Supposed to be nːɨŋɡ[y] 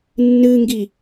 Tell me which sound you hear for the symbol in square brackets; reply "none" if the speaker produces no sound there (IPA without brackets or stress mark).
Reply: i